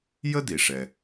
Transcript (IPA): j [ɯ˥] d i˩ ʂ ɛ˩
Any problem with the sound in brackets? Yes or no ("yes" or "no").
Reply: yes